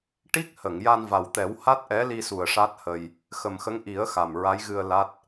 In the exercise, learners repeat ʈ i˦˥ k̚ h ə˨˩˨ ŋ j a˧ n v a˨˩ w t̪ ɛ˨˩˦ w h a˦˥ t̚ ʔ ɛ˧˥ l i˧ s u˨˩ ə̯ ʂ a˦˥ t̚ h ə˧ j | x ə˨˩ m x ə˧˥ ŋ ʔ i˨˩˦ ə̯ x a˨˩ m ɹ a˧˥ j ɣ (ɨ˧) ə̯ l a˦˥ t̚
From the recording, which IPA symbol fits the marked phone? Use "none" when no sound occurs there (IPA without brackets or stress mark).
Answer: ɨ˧